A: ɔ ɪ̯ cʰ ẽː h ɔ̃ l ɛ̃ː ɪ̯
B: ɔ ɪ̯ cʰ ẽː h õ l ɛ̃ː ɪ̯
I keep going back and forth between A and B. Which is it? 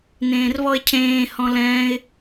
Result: A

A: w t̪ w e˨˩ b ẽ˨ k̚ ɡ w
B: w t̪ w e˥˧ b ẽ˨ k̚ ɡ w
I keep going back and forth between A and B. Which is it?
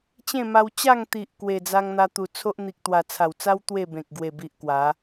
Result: B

